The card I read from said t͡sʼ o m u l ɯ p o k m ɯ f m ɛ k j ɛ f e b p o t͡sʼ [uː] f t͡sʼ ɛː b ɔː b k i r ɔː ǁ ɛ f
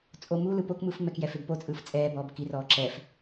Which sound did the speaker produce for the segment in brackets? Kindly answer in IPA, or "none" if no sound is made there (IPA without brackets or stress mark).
ɯː